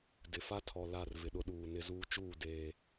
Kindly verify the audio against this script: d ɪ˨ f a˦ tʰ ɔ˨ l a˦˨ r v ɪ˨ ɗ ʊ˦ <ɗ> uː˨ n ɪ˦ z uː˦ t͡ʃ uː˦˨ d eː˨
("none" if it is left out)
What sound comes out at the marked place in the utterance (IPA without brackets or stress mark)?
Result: ɗ